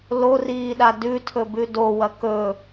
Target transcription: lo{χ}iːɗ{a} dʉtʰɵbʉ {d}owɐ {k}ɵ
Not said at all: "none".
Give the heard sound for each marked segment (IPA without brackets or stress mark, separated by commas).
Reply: r, a, d, k